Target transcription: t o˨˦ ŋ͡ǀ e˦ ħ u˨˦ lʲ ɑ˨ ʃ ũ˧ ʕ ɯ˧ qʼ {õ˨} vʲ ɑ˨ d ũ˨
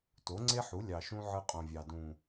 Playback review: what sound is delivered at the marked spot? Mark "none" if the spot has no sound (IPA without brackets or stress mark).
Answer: õ˨